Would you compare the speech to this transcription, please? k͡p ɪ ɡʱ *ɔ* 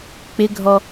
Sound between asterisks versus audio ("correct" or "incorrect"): correct